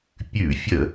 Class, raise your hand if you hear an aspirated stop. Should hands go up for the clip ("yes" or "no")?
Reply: no